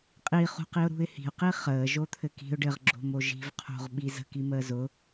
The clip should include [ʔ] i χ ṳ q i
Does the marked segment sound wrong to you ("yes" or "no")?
yes